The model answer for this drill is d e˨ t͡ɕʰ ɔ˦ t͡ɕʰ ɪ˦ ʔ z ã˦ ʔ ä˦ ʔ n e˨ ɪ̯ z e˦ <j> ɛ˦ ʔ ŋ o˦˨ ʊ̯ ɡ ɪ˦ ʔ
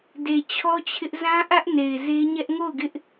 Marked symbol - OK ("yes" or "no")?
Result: no